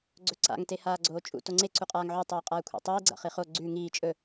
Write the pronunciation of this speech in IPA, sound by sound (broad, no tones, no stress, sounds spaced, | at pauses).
ɡ͡ǀ ɵ ǀ a̰ ŋ t e h aː ɡ͡ǀ oː t͡ʃʼ ṵ t o ŋ͡ǀ e ǀ u qʼ aː ŋ ʕ ʉ tˤ ʉː qʼ aː kʷʰ ḛ tˤ iː ɡ͡ǀ a̰ χ i χ o ɡ͡ǀ ʉː ŋ iː t͡ʃʼ ɵ